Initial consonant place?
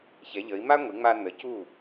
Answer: palatal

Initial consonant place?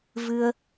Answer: labial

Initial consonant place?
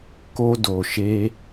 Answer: velar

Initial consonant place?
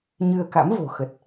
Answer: palatal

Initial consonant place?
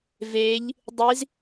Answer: labial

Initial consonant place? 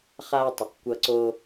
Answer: uvular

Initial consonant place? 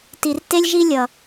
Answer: alveolar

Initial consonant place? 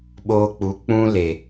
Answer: labial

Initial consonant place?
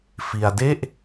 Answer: labial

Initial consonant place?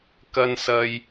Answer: velar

